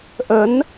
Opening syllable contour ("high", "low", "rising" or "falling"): rising